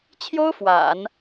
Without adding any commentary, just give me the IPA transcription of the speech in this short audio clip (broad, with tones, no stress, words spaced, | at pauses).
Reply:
t͡ɕʰjo˥ʊ̯ fwa̰˨˩˦n